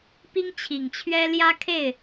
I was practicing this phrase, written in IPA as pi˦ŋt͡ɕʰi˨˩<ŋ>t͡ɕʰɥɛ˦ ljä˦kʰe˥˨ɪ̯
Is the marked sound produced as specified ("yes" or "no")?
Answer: yes